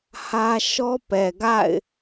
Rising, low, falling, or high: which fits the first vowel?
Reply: high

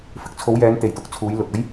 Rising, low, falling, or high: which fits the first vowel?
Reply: rising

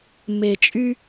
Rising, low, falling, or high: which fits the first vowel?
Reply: low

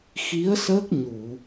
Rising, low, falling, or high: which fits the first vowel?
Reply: rising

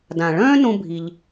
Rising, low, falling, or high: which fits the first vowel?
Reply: low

